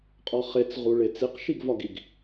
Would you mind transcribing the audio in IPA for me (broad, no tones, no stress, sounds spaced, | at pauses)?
qʼ ɒ χ e t͡s ʁ u ɭ e t͡s i q ʃ i ɡ v ɒ ɡ i ɡ